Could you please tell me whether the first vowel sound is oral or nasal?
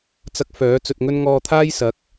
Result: oral